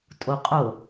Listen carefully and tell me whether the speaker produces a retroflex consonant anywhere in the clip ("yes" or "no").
no